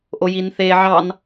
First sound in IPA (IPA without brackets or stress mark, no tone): ʔ